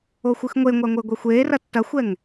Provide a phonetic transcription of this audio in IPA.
o xʷ ɯ x ŋʷ e ŋʷ a ŋʷ ɘː ɡʷ ɛ xʷ eː r ɐ tː ɐ xʷ ɛ ŋ

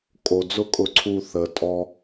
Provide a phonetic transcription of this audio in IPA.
kʼ o˨ d͡z ʊ˦ kʼ ʊ˧ ǀʰ u˧ θ ə˨ tʼ ɔ˧

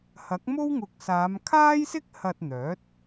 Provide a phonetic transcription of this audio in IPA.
h ɐ˨˥ k̚ m o˥ w ŋ ʊ˨ k̚ s aː˨˧ m kʰ aː˥ j s ɪ˥ k̚ h ɐ˨ t̚ n̪ œː˨˥ t̚

